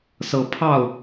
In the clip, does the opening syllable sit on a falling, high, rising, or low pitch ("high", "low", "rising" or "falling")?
rising